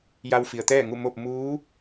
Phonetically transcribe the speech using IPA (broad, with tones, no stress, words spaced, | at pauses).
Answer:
ja˧wfi˩ə̯t̪ɛː˥˨ŋu˥˨ mo˥˨p̚ muː˧˥